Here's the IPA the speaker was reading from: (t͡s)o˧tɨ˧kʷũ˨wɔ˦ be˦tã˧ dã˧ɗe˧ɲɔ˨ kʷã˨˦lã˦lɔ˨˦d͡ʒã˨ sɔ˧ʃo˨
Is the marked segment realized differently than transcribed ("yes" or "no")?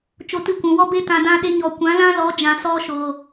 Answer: yes